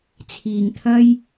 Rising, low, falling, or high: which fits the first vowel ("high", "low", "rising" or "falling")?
low